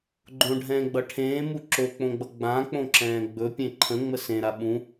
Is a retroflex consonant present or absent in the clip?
present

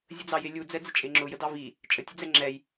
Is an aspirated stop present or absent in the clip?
absent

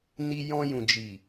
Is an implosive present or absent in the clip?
absent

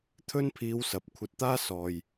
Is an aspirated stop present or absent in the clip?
present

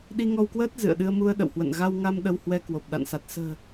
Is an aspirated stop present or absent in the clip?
absent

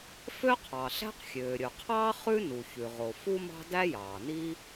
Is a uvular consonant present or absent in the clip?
present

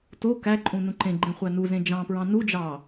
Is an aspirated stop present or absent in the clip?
absent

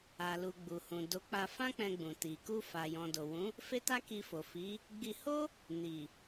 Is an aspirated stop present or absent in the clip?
absent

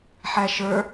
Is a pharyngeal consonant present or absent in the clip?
present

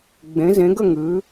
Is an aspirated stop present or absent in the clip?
absent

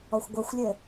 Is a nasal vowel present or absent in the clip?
absent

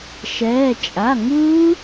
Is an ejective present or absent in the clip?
present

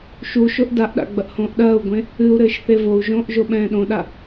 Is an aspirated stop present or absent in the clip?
absent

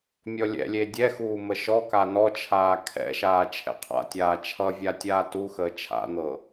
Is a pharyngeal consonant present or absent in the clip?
absent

